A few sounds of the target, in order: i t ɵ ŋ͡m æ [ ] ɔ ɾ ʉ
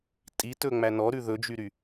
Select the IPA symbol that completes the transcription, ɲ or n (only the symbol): n